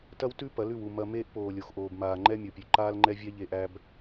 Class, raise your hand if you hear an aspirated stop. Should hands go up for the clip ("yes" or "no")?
no